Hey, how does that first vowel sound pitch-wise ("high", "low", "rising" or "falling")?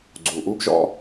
low